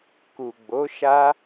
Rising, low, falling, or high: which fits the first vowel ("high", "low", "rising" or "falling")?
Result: low